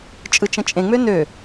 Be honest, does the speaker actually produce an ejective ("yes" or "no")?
yes